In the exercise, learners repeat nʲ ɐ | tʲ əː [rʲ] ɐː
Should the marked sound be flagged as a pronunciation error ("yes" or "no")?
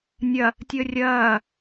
no